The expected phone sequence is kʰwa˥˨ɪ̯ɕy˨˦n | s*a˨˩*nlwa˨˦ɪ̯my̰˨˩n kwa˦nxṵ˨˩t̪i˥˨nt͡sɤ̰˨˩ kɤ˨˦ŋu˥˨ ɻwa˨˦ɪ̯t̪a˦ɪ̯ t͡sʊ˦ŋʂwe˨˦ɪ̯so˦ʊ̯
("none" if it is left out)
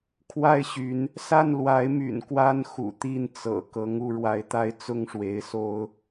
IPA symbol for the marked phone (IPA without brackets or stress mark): a˥˨